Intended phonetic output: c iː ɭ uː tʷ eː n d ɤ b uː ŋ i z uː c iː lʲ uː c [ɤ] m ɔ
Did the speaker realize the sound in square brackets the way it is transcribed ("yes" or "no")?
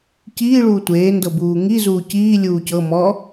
yes